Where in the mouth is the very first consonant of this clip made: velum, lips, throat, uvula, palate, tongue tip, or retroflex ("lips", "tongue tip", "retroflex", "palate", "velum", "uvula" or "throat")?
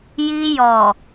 palate